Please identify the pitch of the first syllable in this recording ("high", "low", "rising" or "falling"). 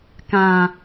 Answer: low